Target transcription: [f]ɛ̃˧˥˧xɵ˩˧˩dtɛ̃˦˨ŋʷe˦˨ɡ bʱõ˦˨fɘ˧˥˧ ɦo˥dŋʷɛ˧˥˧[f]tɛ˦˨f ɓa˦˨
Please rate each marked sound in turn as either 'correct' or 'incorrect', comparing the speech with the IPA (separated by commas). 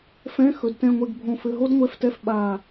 correct, correct